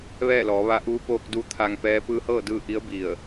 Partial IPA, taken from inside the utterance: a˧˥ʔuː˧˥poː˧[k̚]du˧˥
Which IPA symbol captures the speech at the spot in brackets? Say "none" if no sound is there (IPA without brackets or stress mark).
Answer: k̚